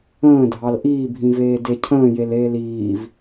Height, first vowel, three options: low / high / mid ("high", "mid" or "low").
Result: mid